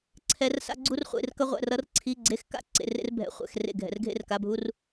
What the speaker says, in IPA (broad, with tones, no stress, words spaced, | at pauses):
ǀʰɛ˧˥rsa̰˥ɡ͡ǀu˥rχʷḛ˧˥˧r kʌ˥ʁʷɛ̰˧˥˧r ʌ˧˥rǀʰi˧˥˧ ɡ͡ǀe˧˥˧xka̰˥˨ ǀḛ˧˥˧rḛ˥rbʱɛ̰˧˥ χʷɛ̰˧x rḛ˥˨ɡʱɛ̰˧r ɡʱḛ˥rka˧˥˧bʱu˥r